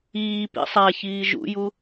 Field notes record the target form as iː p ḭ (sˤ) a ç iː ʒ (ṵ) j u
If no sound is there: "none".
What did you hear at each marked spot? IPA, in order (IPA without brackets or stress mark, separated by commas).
sˤ, ṵ